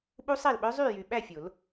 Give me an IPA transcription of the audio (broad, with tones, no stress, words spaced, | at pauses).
ɓu˦˥sˤæ˥˩lɓœ˦˥ zˤy˥˩jy˨ɓæ˥˩fʲo˨˩˦l